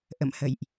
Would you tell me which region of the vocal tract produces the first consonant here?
throat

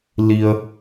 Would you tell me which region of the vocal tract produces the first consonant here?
tongue tip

